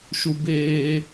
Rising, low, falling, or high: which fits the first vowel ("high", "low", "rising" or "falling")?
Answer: high